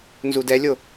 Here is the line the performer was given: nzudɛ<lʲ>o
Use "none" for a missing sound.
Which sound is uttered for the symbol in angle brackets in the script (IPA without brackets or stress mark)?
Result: lʲ